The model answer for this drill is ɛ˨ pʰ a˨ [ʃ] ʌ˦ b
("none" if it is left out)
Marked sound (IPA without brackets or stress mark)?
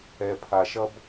ʃ